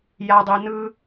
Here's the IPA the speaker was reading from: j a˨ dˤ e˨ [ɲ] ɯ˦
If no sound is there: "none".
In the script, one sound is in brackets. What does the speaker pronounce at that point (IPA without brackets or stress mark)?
n